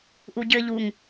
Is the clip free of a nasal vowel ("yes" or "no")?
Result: yes